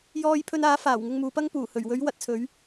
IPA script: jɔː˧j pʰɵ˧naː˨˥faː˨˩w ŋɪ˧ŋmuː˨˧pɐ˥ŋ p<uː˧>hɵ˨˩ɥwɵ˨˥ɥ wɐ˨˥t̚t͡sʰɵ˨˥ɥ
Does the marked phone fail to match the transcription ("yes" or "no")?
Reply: yes